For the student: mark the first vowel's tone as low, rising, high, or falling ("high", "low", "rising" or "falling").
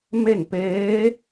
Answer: falling